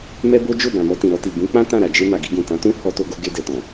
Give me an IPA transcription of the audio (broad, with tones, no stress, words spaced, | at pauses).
mɛ˦bo˦ d͡ʒo˦˨bã˨ mɔ˧tĩ˨ɾɔ˧ti˨ bũ˨˦k͡pã˦ tã˦˨ɾa˨d͡ʒe˧ ma˨ɡi˧ɡũ˨tã˨˦ tũ˦ hɔ˧to˧ɡo˧ ɡe˧dɛ˨ tɔ̃˨